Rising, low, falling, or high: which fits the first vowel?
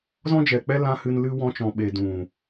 high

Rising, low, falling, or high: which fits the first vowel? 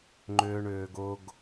high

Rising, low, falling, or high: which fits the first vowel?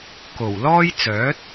low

